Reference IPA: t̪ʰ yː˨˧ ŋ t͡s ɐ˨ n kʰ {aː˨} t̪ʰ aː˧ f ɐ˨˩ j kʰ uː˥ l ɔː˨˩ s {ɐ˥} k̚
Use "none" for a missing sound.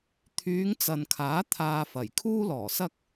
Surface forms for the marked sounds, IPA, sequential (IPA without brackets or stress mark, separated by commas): aː˨˥, ɐ˥